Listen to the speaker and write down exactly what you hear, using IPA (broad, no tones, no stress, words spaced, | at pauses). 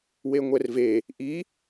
weŋʷɛrve | ʔi